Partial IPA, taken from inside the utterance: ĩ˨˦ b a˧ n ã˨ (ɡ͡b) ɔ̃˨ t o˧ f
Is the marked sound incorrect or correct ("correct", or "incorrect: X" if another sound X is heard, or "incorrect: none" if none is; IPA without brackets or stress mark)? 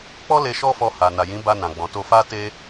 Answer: correct